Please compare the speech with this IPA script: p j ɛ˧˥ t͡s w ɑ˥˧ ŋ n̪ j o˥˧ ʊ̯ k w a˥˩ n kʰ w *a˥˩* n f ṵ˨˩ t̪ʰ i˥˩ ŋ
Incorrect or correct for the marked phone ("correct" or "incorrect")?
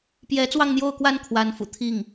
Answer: incorrect